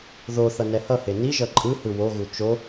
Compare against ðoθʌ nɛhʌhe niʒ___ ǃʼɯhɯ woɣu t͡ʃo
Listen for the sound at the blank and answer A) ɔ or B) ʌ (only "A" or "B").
B